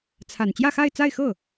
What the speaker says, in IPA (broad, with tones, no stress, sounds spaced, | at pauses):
t͡sʰ a˨˩ n t͡ɕ j ä˥˧ x a˥˧ ɪ̯ t͡s a˥˧ ɪ̯ x ɤ˥˩